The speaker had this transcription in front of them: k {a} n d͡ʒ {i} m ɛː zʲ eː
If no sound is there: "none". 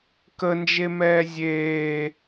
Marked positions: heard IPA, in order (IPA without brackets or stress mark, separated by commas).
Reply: ə, e